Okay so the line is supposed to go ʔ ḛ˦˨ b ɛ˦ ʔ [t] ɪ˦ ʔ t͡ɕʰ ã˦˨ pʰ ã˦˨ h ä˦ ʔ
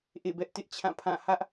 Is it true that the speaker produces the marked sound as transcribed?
yes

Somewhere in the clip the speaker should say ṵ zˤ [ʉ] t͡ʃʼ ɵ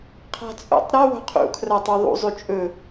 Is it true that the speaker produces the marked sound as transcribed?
yes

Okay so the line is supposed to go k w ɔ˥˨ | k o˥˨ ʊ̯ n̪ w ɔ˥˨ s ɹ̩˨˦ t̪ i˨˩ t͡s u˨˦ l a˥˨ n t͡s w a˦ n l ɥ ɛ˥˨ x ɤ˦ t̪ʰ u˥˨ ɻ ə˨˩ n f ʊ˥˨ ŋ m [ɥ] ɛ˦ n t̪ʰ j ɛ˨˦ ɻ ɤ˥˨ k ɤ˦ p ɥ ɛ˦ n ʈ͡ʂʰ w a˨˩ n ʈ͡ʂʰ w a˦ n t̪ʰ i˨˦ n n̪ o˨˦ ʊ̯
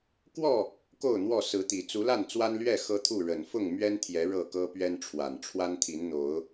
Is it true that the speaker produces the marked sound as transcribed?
yes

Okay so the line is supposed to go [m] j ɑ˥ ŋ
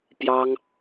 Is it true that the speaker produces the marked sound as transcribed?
no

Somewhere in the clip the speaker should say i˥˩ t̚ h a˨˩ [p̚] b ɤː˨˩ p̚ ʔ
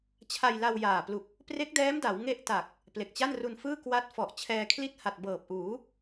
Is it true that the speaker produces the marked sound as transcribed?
no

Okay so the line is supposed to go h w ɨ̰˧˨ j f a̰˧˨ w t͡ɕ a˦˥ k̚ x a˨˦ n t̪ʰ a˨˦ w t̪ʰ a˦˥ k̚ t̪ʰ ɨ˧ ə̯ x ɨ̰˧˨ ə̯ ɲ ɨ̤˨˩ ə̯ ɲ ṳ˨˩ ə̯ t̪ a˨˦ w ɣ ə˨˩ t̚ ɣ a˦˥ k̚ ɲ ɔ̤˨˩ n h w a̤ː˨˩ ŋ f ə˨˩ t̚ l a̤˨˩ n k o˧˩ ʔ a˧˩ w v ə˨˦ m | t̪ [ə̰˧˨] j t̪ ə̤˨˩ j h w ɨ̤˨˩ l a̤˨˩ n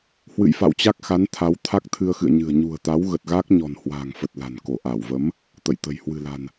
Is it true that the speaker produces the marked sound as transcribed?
yes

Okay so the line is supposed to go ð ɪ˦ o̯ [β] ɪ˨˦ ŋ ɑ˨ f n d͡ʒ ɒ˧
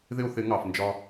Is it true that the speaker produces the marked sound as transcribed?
no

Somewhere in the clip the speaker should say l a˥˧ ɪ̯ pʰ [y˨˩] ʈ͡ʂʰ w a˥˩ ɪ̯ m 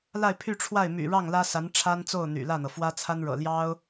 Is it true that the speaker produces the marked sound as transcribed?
no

